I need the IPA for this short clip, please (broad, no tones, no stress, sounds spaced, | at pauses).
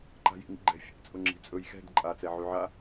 ǃ a̤ j ḭ ŋ ḭ ɡ͡ǃ ɛ̤ fʲ a̰ t͡sʼ ʊ ŋ͡ǁ i̤ t͡sʼ ɵ j x ɛ̤ d ǃʼ a t͡s ɛ ʕ y ʕ a